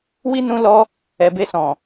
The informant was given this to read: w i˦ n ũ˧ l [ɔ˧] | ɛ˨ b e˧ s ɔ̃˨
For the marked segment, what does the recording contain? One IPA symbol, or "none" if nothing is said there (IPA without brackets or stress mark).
ɔ˧